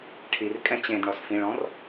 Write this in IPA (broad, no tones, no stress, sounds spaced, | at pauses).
ʈʰ i r kʼ ɛ̃ t͡ɕ ẽ d ɳ ɔ s f ĩ ɭ ɔ̃ r